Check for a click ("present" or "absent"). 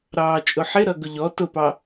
absent